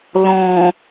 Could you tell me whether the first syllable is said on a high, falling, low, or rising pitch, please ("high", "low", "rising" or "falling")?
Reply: low